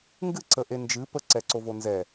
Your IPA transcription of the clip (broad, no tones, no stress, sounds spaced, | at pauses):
ŋ ɡ ɨ ǀ ə ʔ e n d͡ʒ ɨ p ə ǀ ɛ ǀ o v o n z ɛ